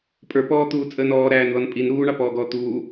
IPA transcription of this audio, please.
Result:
pʼ ə˞ p ɔː t̪ uː t͡sʼ əː n ɔː ɾ æː n ð ɔ n pʼ i n ɾ uː ɳ ɑ p ɔː ɡ ɔː t̪ uː

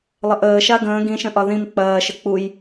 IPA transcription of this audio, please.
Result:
lˠ ə ʔ əː ʃ a ɡ ə̃ː ɡ ĩ ʃ ə̃ ʔ ɒ ð ĩ m k͡p ɐː ʃ ə k͡p u j

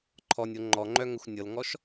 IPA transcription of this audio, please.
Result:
ǃʰ ɔ nʲ o ŋ͡ǃ ɔ ŋ͡ǃ œ ŋ ə xʷ nʲ ɤ l ŋ ɔ ʃ

